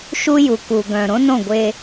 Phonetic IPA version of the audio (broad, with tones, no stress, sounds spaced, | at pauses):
ʃ u˦ j u˨ k u˨ ɡ œ̃ː˨ ɾ õ˦ n õ˦˨ ɡʷ e˦